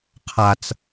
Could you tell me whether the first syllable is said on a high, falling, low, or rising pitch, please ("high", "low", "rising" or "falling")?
high